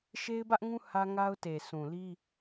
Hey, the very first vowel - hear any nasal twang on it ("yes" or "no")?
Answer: no